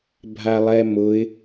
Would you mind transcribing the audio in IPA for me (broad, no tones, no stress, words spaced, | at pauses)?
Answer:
bʱalˠɛmʊɪ̯